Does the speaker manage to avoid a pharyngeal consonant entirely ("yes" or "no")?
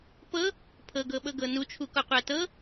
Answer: yes